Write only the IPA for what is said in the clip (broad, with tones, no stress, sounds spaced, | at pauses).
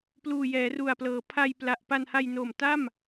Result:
p l uː˨˩ j ɛː˩˦ r u˨˩ a̯ p l ɤː˩˦ pʰ a˧ j p l a˨˩ ʔ p a˧ n h a˧ j n o˨˩ m t a˥˩ m